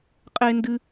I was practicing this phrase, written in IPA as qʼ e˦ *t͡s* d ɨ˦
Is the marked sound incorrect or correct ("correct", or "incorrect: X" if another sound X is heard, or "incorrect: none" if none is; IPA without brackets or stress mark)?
incorrect: n